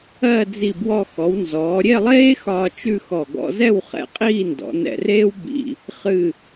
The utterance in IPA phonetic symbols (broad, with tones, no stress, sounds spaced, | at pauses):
ɜ˥˧ d͡z i˧˩ b w ɔ˧ x ɔ˩˧ w n z ɔː˩˧ ɾʲ e˥˧ lˠ eː˥ x ɒː˧ t͡ʃ ʉ˥˧ x ɔ˧˩ ɡ ɔ̰˧ z ɛ˥˧ w χ ɛ̰˧ qʼ iː˥˧ n d ɔ̰˩˧ n ɛ̰˧˩ r eː˥ w b ḭ˧˩ | χ ɨ˧˩